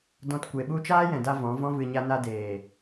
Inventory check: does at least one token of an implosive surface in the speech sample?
yes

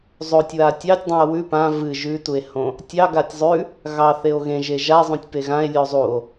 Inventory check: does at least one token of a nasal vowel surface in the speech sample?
yes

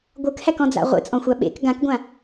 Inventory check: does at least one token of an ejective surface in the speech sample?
yes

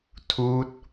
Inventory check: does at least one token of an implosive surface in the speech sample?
no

